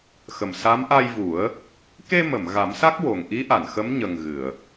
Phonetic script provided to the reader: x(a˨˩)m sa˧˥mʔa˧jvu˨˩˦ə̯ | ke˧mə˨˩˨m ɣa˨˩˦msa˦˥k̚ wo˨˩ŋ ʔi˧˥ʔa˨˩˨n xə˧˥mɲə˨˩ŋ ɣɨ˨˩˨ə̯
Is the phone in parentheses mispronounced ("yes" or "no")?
yes